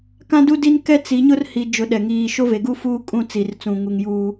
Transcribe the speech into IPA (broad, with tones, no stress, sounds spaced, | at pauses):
k ã˦ d u˦ d i˦ n k ɛ˦ t͡s i˨˦ ɲ ʊ˦ r h i˨ d͡ʒ ʊ˨ ɗ ɛ˨ ŋ iː˦˨ ʃ o˦ v e˨ ɡ u˦ f uː˦ kʼ ũ˦ t͡s i˨ r t͡s ũ˨ ŋ u˨ ŋ j uː˦